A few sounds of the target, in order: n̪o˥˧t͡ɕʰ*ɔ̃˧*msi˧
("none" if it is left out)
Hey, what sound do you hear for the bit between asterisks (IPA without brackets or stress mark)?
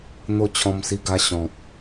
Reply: ɔ̃˧